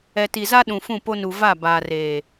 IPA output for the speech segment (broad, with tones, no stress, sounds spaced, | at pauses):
ɛ˨ t i˨ z a˦ ɗ ũ˨ f ũ˦˨ p o˦ n u˨ v a˦˨ b aː˨ r eː˨